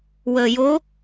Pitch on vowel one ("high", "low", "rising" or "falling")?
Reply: low